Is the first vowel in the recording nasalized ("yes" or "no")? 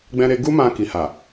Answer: yes